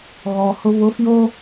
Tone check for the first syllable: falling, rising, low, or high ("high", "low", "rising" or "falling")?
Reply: low